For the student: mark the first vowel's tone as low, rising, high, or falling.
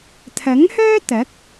rising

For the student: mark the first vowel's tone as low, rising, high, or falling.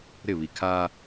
falling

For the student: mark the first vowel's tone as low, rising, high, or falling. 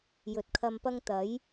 low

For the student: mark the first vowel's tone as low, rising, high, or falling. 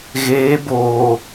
rising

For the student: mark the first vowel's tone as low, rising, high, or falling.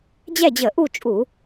falling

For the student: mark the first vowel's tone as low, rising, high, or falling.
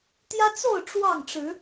high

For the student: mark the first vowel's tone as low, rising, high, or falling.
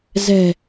low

